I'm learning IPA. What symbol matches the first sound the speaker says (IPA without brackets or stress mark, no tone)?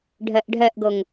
ɖʱ